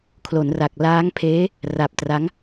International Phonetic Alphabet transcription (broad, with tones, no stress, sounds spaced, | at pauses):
kʰ l o˩˦ n r a˨˩ k̚ l aː˦˥ ŋ pʰ eː˦˥ | r a˨˩ p̚ t r a˦˥ ŋ